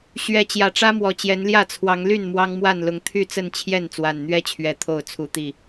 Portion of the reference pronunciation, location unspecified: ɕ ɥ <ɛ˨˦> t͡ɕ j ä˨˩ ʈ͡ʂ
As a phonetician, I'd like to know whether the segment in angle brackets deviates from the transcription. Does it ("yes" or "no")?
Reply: no